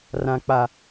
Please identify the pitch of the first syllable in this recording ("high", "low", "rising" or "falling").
low